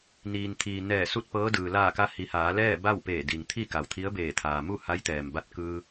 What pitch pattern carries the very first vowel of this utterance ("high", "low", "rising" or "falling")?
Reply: low